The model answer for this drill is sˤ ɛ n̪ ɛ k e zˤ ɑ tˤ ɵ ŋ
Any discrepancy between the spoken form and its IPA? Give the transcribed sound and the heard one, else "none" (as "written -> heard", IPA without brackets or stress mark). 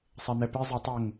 k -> p